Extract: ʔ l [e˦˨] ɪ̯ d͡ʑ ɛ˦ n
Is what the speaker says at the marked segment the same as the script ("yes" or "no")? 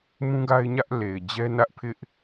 no